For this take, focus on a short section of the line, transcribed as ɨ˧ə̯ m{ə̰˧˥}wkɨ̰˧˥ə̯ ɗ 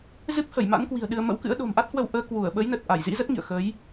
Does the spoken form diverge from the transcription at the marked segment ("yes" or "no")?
no